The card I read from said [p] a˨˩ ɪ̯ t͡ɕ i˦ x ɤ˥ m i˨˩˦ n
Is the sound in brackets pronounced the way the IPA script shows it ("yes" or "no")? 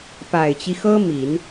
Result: yes